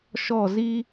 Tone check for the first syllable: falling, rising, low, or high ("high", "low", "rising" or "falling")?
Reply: falling